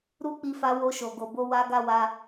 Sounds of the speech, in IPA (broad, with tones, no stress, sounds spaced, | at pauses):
ɾ u˦ k͡p i˧ f a˧ w o˧ ʃ o˨ ɡ o˨ b o˧ w a˧ ɡ a˦ w a˧